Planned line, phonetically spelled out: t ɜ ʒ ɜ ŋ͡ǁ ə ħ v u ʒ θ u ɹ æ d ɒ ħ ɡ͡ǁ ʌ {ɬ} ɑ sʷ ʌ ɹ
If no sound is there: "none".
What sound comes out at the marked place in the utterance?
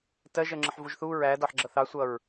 θ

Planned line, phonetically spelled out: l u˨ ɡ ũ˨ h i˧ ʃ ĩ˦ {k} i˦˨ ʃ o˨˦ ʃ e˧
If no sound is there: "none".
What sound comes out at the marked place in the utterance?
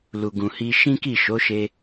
k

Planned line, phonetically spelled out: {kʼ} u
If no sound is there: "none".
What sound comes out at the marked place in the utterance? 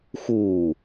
x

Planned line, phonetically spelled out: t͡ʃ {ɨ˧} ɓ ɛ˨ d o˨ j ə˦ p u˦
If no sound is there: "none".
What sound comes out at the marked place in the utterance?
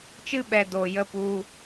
ɨ˦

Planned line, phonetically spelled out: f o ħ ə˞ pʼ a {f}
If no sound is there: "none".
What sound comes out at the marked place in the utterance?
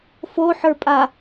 none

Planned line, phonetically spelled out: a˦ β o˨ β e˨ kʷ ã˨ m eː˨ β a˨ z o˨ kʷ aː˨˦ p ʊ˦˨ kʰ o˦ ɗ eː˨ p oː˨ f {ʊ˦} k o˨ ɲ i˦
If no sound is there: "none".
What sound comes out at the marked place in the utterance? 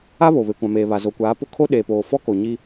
ɔ˦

